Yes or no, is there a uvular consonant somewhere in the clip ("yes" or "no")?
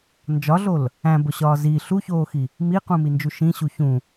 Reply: yes